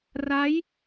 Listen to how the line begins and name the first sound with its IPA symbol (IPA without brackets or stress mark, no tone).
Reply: r